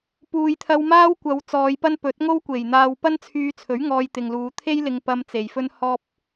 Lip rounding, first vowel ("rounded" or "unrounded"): rounded